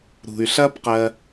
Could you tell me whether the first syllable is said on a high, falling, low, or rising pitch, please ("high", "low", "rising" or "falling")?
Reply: low